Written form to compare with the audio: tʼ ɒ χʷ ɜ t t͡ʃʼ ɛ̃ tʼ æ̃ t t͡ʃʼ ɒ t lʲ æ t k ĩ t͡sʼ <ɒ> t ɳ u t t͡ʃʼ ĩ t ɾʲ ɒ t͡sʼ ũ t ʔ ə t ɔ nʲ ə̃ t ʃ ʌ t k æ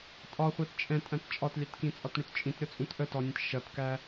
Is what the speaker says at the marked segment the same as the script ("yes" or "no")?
yes